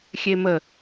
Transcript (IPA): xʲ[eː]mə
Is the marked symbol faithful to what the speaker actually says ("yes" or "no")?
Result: no